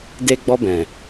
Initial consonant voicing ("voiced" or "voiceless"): voiced